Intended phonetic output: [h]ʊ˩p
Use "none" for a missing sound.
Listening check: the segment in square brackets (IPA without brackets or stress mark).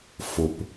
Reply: f